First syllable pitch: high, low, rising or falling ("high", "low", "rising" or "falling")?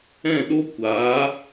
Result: falling